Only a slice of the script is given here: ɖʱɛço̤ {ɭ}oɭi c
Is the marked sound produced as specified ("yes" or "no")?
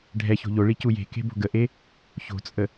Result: no